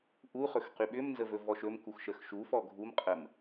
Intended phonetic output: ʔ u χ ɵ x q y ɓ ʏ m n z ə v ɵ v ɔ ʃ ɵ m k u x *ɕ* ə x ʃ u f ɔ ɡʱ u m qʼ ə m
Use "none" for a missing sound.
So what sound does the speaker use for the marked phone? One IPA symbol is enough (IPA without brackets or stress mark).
ʃ